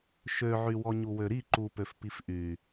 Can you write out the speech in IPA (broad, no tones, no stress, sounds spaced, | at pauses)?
ʃ ø ʕ y w ɔ ɲ u w ø ɾ i ǃ u p ø f p i f ʔ y